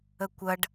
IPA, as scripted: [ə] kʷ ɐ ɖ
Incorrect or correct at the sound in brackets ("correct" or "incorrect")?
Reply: correct